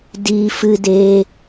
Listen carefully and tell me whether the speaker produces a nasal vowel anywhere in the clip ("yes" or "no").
no